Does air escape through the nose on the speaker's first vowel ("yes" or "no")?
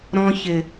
yes